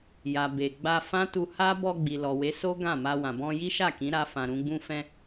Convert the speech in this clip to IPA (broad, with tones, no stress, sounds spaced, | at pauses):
j a˨ b e˨ ɡ͡b a˧ f ã˦ t u˧ h a˦ b ɔ˧ ɡ͡b i˨ l ɔ˨ w e˨˦ s o˦ ɡ ã˦˨ m a˧ w ã˨ b ɔ̃˧ j i˦ ʃ a˦˨ k ĩ˨˦ ɾ a˧ f ã˨ ɾ ũ˧ ɡ͡b ũ˧ f ɛ̃˧